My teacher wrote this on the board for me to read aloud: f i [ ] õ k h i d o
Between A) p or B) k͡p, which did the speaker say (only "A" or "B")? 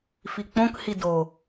B